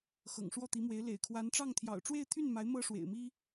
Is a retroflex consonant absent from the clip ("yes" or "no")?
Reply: no